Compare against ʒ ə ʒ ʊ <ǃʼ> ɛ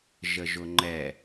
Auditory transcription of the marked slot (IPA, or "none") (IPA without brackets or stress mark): ŋ͡ǃ